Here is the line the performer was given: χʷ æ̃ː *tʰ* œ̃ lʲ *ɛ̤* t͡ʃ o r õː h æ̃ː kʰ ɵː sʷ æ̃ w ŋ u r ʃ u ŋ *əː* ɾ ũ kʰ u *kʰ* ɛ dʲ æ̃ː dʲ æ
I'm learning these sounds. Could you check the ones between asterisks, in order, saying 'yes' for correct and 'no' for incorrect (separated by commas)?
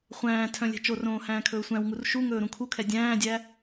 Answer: yes, yes, no, yes